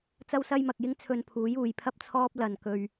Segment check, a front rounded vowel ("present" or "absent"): absent